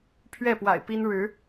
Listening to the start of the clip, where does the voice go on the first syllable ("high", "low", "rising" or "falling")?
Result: falling